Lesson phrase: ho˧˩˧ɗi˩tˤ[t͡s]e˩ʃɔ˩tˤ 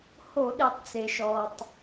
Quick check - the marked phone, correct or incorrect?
correct